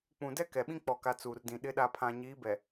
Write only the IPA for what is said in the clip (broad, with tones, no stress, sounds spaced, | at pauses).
k͡p ũ˨ d ɛ˦ k ɛ˨ ɓ ĩ˦ k͡p ɔ˨ k a˨ t͡s uː˨ r d ĩ˨ ɗ ɪ˨˦ ɗ a˨ pʰ ã˨ ɲ iː˨˦ b ɛ˨